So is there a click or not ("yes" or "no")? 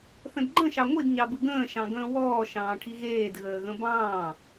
yes